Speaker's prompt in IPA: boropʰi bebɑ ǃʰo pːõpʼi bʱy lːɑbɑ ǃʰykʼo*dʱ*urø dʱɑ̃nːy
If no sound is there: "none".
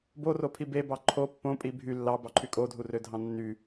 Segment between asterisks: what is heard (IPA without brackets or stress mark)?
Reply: dʱ